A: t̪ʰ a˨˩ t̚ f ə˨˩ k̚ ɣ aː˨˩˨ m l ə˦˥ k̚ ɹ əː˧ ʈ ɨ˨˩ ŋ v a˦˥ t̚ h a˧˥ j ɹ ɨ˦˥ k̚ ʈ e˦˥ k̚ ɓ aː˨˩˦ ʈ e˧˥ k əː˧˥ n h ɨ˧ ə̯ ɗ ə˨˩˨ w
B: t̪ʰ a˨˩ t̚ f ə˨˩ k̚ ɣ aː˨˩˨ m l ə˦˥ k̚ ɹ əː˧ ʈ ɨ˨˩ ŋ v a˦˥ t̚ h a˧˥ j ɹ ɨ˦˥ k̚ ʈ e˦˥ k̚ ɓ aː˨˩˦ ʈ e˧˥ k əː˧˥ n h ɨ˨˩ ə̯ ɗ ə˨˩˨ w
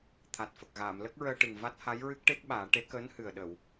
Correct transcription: B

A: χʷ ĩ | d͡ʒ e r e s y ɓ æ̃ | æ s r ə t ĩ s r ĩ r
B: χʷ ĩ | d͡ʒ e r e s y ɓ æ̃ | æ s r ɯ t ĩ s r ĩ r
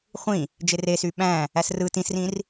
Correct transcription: B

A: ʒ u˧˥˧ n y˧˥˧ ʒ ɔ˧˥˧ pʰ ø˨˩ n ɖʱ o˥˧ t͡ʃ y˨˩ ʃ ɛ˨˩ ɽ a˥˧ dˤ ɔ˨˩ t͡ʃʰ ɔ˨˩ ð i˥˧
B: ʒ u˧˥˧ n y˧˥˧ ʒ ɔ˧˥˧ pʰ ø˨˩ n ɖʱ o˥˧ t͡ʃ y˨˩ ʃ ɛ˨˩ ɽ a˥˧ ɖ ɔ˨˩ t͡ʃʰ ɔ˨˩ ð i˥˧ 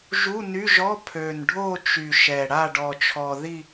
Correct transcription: B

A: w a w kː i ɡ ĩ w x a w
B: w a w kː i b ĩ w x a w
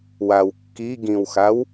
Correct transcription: A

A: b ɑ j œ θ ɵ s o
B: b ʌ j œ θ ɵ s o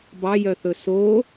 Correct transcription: A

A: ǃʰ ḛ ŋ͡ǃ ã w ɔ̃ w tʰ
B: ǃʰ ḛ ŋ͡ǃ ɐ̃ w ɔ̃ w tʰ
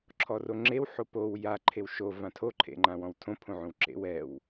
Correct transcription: A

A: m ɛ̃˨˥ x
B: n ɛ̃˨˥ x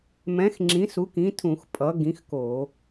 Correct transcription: A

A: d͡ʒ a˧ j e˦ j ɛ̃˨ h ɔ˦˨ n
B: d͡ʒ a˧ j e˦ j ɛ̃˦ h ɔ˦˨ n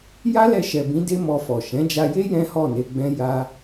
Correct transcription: B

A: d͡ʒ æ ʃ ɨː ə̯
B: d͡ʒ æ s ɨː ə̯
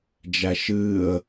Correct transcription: A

